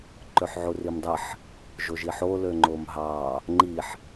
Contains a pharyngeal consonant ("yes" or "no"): yes